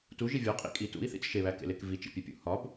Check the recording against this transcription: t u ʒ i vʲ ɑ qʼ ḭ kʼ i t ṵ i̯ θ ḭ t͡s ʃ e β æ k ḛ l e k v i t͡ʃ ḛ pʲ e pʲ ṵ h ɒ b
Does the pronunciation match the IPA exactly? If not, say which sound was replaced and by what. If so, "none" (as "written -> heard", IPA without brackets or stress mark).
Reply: ɑ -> ɒ